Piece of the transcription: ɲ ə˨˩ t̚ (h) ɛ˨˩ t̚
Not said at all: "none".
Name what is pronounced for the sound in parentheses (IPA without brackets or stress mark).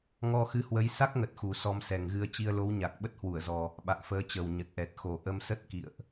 ʔ